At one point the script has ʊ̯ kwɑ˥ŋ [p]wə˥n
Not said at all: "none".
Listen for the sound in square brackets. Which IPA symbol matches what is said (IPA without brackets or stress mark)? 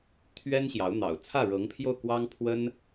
pʰ